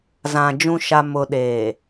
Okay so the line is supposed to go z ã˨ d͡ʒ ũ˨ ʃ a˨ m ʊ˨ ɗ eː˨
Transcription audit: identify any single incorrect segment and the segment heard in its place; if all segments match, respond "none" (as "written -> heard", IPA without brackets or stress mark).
none